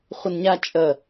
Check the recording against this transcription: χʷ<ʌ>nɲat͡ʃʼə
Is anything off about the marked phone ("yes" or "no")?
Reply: yes